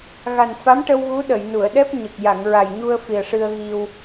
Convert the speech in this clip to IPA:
ɣa˨˩nfa˧˥mʈə˧w ɣu˧˥ ɗə˨˩˨jnu˨˩˨ə̯ ɗɛ˦˥p̚ɲə˨˩k̚ ja˨˩˨ŋɹa˨˩jɲu˧ə̯ fi˨˩ə̯ʂɨ˧ə̯ɣi˧w

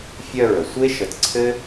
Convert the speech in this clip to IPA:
fʲœ˦ɹə˩ sʷe˥ ʃə˨t ǀʰɘ˥

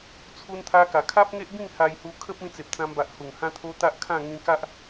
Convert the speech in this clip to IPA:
t͡sʰu˦nt̪ʰa˦ka˨˩ kʰa˦p̚ŋe˦ʔbĩ˥˧ŋ ha˧jhu˧kʰə˦p̚ĩ˧ t͡se˨p̚t͡sã˧mba˨ʔ hu˨˩ŋhã˦t̪ʰo˦ t̪a˦ʔkʰã˥˧ ŋĩ˧ka˦ʔ

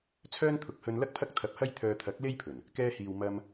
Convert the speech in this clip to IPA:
t͡sʰœː˥nt̪ʰʊ˨k̚hɵ˧n lɐ˥k̚pʰɐ˥k̚t̪ʰɐ˧p̚ hɐ˥j t̪ʰœː˧t̪ʰɐ˨˥k̚ le˥jpʰɵ˨˩n | kɛː˧hiː˨w mɐ˧m

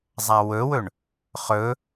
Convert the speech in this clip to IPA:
zˤawɵwɵɳ | χɵ

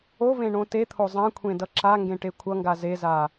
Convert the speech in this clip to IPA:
ovẽ ɳõtet̪ʰo zˤãkʷʰẽ dʌǁaŋɡẽ ʈekʷʰʌŋɡa zeza

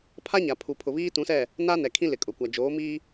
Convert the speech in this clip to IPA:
pʰa˦ɲa˨pʰu˨ pʰʊ˨βiː˦tũ˨˦sɛ˦˨ | na˦nɛ˨kʰĩ˦ lɪ˨kʼʊ˨kʷa˨ d͡ʒoː˨˦miː˦

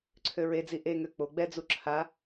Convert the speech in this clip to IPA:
ǀʰøɹed͡zi ʔeŋø k͡po ɡ͡bɛd͡zu ǁʰa

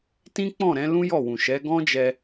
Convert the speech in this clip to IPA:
tĩ˦k͡pɔ̃˦˨ ɾɛ̃˨˦lũ˦jɔ˦˨wũ˨ ʃɛ˨˦ ɡɔ̃˦d͡ʒɛ˧

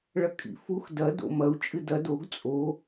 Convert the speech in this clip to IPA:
ɭɐkʼḭfux dɐ do̰mɐu̯ t͡ʃʼɨdɐ doɡ t͡sʼo

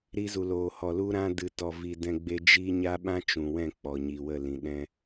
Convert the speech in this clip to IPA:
ɾi˧zu˨loː˨ hɔ˨lu˧ɾã˧ dɨ˨tɔ˨vi˨ dɛ̃˧ɡ͡be˦ d͡ʒi˧ ɲa˦ɓã˦ t͡ʃũ˨wɛ̃˦˨ k͡pɔ˨ɲi˨wə˦˨ lĩ˨ɗɛ̃˦

